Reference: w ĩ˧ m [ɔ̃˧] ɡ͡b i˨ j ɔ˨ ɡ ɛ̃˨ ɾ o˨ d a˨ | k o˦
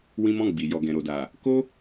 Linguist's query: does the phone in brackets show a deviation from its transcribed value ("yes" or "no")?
no